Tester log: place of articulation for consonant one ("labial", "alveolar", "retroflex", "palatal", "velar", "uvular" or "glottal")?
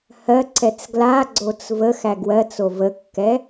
glottal